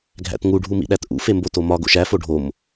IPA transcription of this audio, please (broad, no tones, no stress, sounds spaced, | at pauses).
ɡʱ æ̰ t ŋ u ɖʱ u m ḭ ɗ æ t ʔ ṵ f e m b o t o m ɒ ɡ o̰ ʃ æ f o ɖʱ o m